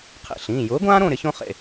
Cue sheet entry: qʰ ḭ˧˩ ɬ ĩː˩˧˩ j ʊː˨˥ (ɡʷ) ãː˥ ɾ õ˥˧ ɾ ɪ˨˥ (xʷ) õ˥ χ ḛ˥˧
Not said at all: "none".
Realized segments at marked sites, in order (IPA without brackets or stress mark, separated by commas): ɡʷ, ç